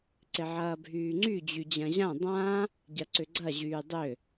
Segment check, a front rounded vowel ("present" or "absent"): present